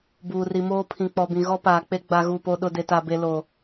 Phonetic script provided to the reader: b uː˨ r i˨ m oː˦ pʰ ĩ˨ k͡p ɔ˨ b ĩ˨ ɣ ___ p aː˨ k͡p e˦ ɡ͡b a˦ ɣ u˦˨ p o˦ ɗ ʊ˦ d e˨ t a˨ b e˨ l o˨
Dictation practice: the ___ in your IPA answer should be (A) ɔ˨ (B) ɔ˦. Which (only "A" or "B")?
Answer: B